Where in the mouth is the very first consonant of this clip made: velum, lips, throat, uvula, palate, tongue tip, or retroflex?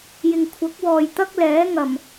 palate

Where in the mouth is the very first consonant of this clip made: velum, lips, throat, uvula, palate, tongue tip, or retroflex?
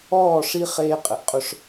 retroflex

